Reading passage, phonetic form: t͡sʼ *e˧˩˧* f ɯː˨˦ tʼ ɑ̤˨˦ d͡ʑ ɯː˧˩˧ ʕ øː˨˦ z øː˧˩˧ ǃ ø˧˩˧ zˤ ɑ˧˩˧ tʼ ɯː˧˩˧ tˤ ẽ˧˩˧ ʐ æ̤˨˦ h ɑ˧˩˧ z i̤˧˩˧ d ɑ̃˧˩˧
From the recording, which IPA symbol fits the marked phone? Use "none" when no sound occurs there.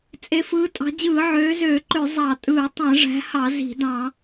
e˨˦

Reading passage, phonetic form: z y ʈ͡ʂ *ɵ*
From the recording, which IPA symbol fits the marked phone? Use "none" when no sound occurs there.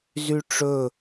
ɵ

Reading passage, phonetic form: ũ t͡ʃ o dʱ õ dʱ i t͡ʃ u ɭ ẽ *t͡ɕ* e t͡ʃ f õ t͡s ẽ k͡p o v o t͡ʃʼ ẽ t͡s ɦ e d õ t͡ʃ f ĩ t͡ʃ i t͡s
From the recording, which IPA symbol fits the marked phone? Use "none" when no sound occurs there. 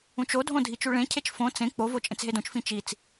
cʰ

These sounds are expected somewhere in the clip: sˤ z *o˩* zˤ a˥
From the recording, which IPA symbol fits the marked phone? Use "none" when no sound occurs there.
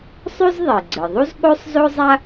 o˥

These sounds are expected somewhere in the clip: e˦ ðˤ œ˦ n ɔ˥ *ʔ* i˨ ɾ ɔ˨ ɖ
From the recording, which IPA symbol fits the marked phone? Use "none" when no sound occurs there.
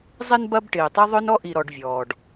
ʔ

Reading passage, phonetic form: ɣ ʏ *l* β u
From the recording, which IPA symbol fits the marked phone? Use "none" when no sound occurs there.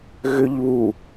ʎ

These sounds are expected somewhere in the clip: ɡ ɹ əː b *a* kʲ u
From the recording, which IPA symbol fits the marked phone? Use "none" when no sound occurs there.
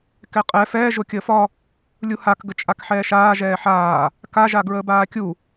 aː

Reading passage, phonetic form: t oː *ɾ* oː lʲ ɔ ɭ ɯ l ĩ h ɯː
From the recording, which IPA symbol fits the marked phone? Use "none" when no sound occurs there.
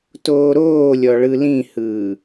ɾ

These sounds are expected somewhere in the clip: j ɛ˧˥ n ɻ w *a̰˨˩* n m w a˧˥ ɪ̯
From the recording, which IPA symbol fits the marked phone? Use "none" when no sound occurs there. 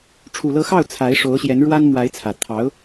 a˥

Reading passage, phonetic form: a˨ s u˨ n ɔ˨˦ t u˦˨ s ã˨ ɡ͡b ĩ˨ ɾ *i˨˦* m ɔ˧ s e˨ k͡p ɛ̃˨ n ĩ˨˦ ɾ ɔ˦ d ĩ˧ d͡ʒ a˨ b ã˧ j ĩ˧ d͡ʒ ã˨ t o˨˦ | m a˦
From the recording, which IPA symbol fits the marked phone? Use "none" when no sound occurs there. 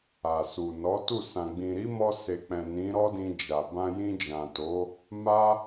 i˨˦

